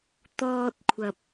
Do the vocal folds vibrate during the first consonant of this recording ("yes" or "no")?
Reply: no